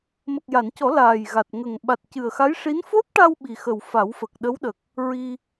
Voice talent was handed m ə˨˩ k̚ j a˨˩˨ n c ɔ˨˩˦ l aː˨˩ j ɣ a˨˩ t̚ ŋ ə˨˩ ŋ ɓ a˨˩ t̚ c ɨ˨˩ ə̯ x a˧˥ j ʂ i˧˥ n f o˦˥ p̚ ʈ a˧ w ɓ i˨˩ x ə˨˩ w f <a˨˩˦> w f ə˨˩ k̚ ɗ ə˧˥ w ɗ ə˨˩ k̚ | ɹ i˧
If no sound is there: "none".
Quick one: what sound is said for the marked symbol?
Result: a˨˩˦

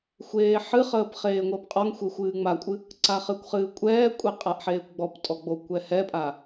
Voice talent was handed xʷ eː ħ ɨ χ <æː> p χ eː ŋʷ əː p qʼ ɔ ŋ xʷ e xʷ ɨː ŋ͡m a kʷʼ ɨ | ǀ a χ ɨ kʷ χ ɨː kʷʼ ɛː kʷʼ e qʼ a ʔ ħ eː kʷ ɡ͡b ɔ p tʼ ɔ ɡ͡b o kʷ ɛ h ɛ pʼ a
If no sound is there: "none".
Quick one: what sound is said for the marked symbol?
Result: əː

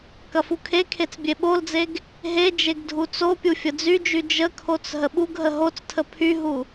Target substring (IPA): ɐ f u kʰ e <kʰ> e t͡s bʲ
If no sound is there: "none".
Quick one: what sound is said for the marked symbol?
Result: kʰ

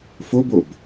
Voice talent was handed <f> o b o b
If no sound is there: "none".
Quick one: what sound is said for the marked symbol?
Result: f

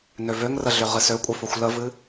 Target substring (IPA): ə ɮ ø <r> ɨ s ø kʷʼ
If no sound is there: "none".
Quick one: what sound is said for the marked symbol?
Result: ʁ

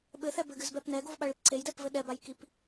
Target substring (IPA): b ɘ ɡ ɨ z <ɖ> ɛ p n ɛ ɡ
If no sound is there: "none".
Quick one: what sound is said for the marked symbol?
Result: b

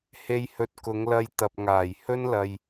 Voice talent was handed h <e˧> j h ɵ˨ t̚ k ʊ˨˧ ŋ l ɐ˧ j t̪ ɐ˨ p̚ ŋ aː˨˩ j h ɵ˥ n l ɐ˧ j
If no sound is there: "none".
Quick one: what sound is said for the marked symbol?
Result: e˨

